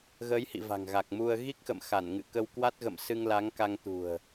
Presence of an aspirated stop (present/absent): absent